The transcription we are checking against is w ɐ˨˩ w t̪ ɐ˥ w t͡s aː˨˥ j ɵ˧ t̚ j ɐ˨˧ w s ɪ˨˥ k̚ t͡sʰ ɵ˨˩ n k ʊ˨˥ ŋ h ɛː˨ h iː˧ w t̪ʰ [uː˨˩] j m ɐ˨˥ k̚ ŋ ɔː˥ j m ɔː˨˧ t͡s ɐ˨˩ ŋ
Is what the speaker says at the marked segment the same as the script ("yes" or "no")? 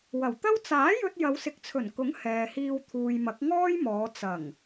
no